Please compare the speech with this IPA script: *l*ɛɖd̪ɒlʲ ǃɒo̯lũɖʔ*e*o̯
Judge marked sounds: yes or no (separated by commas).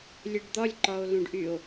no, no